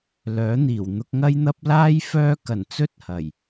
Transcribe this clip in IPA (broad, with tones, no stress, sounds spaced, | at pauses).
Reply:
l œː˨˥ n̪ iː˨˩ w n̪ ʊ˧ k̚ ŋ ɐ˥ j n̪ ɐ˥ p̚ l aː˥ j f œː˥ k ɐ˨˩ n t͡s ɵ˥ t̚ h ɐ˨˩ j